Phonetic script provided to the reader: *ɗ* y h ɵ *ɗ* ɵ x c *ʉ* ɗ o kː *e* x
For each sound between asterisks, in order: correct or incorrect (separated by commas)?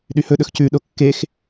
correct, correct, correct, correct